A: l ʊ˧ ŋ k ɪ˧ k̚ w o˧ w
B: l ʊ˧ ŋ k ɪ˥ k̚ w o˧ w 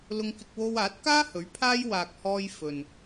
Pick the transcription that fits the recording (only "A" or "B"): A